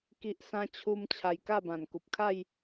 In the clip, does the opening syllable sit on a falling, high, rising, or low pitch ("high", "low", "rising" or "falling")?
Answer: high